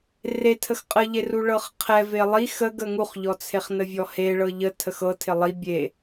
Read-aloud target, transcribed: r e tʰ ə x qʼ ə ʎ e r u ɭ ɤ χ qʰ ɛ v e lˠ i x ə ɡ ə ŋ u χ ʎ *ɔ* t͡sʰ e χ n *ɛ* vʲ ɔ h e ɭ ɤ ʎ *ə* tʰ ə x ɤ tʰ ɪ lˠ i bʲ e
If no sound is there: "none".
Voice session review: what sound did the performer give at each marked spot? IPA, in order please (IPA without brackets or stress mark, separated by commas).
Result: ɔ, ə, ə